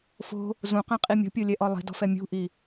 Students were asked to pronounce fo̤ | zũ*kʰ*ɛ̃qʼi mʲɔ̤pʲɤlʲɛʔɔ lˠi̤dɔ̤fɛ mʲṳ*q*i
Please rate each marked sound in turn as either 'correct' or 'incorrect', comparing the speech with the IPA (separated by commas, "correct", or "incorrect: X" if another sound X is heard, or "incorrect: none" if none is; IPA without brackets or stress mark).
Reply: incorrect: q, incorrect: ʔ